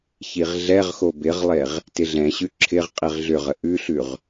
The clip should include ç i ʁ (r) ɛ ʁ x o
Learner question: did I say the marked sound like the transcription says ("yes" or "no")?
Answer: no